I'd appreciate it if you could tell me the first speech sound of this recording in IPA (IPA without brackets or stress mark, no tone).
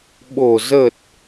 ɓ